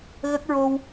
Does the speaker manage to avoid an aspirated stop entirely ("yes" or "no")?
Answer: yes